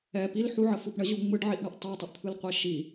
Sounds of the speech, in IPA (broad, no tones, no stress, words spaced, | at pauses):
ɛ pil ħuʕəfɯp ɳəʑu ŋ͡mɯɖʕiʔɳʌʔ tˤɛtˤəʔt̪ʰɯlqʷe ʃi